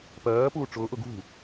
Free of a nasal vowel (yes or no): yes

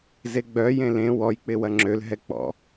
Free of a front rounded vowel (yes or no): no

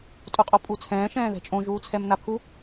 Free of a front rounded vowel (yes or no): yes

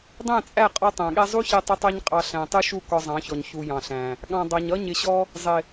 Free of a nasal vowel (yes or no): no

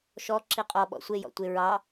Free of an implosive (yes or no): no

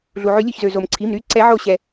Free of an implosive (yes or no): yes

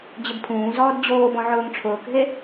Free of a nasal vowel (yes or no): no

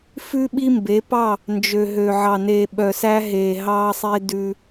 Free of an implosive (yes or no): no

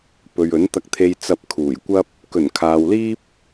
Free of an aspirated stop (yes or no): no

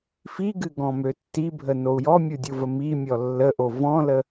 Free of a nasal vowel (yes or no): no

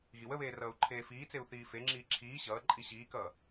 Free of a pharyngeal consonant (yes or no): yes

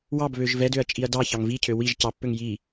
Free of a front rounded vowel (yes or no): no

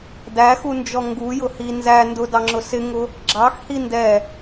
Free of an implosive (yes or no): yes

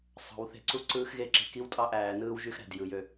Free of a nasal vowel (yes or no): yes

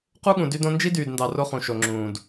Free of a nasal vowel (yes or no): no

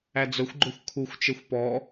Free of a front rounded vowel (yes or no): no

